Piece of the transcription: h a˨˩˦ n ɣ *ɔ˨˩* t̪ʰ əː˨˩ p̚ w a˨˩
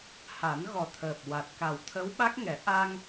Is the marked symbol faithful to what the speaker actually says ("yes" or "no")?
yes